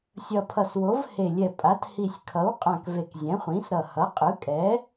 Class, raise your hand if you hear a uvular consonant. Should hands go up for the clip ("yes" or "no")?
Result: yes